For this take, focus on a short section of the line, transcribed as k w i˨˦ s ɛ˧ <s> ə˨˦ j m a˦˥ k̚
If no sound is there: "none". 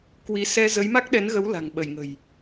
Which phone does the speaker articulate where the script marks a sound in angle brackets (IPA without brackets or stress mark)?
z